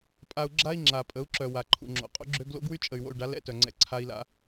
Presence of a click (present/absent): present